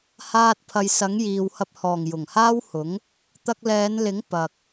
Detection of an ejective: absent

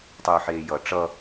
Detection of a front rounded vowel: present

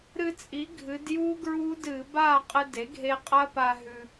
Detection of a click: absent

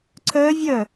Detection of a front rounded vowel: present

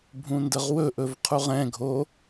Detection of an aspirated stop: present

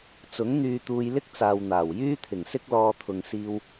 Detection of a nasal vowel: absent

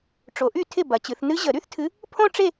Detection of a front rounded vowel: present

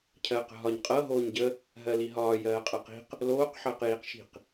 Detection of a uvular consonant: present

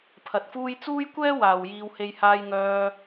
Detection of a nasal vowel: absent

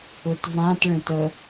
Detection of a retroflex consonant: present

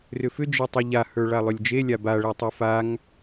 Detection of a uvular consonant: absent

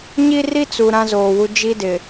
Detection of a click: absent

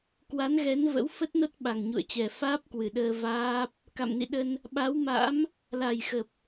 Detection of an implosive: present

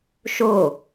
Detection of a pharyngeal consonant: absent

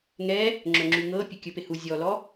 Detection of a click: present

